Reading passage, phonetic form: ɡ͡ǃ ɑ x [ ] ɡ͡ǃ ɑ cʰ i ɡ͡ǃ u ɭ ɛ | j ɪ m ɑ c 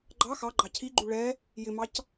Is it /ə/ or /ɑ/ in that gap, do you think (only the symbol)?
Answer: ɑ